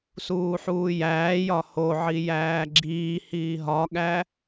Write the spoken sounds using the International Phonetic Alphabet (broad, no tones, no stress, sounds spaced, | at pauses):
s uː ħ uː j æː j ɒ h o ʕ i j æː ɡ͡ǁ iː h iː ɦ ɒ ɠ æ